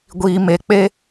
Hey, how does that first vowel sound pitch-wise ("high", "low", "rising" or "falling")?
low